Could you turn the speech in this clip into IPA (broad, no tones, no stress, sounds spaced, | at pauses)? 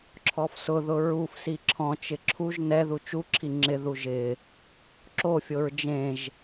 ǁʰ ɔ f s ʊ ð ʊ ɹ u f s i ǁʰ ɔ̃ t͡ʃ ɪ ǁʰ u ʒ n ɛ ð u t͡ʃ u ǁʰ i ŋ͡ǁ ɪ ð u ʒ ɪ | ǁ o fʲ o ɹ d͡ʒ ẽ ʒ